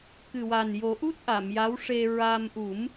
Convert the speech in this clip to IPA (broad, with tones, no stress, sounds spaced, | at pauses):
k ɨ˨˩ w a˨˩ n j o˨˩˦ ʔ u˦˥ t̚ ʔ a˨˩˨ m j a˧˥ w ʂ e˧ ɹ a˧ m ʔ u˨˩˦ m